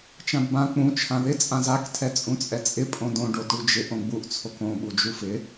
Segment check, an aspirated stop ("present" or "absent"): present